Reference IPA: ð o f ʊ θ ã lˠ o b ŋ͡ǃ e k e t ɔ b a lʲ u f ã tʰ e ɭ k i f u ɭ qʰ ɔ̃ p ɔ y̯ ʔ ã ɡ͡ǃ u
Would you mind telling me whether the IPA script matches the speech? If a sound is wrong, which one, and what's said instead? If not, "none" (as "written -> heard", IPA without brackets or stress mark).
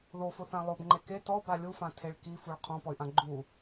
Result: none